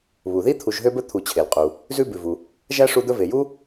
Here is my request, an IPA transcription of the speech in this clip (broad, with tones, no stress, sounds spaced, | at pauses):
β u˩ ð i˦ t̪ʰ u˨ ʒ ɦ ø˦ b ɵ˦ t̪ʰ u˨ t͡ɕʰ e˩ l qʼ u˩ | z ʉ˦ b ʉ˩ v u˩ | ʒ æ˥ ʂ u˦ d̪ ɵ˦ v e˩ j u˥